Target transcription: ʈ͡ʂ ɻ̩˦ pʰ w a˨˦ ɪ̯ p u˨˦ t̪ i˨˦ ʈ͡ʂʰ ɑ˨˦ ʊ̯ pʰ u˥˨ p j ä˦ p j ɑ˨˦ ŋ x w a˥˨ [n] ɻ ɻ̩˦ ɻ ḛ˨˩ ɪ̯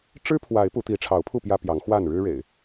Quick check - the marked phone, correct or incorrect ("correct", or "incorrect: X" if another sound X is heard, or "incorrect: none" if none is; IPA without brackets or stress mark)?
correct